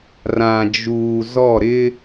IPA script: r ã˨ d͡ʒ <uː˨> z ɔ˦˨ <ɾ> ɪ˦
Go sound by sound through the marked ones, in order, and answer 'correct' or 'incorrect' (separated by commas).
correct, correct